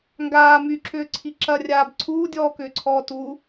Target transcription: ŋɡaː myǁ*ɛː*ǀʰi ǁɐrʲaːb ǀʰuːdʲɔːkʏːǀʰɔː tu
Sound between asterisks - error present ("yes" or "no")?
yes